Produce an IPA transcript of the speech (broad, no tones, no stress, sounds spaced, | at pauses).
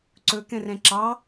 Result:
ǀ ɵ k ɛ̃ r ɛ̃ ǁ ɑ